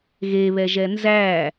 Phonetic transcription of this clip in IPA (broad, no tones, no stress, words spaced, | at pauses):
ɣeβɛʒɛ nzæ